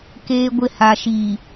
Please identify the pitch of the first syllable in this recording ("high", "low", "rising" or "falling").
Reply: high